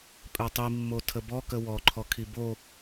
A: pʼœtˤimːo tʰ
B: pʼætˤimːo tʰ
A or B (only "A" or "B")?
A